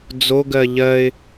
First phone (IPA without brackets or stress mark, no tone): d͡z